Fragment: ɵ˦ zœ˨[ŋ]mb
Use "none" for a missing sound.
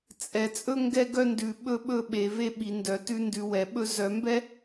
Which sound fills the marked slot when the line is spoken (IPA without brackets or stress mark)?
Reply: none